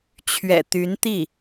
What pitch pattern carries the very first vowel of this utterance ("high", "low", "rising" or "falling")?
low